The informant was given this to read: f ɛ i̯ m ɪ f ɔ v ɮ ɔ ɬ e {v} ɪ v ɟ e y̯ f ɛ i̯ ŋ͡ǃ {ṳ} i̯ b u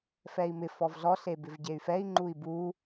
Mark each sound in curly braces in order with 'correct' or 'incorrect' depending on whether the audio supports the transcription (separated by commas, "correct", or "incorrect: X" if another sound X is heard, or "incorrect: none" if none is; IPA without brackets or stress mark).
incorrect: b, incorrect: u